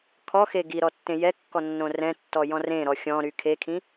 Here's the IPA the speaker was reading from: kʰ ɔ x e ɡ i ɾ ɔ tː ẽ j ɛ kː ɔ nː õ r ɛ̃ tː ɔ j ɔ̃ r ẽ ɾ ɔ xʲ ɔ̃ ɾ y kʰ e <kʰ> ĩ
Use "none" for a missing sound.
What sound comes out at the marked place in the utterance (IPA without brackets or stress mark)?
kʰ